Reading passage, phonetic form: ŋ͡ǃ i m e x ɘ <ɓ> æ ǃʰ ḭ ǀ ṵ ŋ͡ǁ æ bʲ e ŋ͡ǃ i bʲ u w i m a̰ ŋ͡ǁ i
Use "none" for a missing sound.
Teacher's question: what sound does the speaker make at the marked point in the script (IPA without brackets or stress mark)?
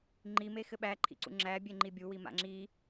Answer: ɓ